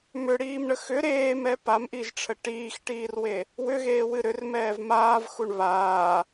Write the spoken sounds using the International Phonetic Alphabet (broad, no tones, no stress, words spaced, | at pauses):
mʏɽiːmɳə xʏ ɾeːmɛ pamʔiʒʈ͡ʂʰə ʈiːxʈiːrwe | wʏɣeːwɨ ɾʏrmɛːv maːvxuɳ βaː